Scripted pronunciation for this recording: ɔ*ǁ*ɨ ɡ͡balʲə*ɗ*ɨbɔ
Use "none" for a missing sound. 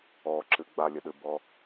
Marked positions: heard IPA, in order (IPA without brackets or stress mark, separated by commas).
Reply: ǁ, ɗ